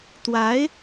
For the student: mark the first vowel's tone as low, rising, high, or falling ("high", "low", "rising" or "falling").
rising